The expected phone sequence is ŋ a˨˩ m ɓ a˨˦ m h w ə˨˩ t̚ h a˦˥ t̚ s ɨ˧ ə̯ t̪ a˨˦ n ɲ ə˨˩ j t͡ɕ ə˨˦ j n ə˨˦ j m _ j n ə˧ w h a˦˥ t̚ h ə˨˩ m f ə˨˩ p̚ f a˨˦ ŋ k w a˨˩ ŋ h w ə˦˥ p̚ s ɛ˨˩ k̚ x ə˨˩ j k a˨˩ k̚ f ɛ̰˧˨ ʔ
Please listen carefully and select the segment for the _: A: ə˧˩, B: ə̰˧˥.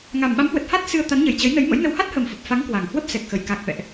B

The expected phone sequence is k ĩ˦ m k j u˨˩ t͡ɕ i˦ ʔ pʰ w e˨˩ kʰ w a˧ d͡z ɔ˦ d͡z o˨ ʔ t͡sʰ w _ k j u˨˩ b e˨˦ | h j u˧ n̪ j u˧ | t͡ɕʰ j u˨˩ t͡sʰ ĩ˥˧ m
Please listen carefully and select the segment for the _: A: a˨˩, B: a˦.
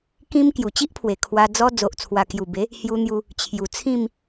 A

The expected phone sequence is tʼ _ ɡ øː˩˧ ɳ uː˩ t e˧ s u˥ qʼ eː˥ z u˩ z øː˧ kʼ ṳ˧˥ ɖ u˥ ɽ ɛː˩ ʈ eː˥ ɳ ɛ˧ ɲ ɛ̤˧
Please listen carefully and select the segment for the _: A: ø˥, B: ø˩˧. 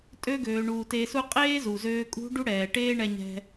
A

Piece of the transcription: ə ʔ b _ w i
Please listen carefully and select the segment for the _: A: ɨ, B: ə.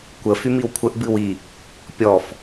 A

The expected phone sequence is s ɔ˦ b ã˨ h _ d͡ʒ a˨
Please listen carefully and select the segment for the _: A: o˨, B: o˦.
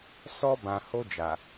B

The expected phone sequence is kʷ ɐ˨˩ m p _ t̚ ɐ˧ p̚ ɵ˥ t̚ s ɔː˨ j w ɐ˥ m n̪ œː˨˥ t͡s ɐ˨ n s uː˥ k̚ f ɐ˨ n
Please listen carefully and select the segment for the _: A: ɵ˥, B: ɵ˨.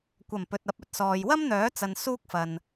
B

